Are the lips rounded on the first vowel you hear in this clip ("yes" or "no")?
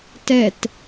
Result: no